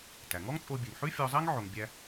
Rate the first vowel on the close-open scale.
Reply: open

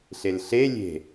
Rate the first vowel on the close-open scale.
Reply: mid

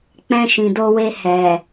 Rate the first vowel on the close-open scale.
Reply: mid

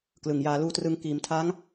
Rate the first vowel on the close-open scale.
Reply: close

